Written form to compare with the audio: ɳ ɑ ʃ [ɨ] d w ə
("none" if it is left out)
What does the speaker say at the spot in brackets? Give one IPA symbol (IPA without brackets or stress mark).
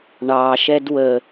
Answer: ɛ